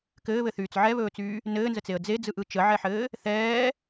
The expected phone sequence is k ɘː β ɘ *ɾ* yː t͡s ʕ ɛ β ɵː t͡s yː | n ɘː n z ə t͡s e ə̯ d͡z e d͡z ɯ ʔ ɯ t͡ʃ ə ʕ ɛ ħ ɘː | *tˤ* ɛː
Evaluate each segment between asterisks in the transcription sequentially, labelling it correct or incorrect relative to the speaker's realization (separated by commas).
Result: incorrect, incorrect